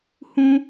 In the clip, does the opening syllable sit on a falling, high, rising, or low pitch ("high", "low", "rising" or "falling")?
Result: high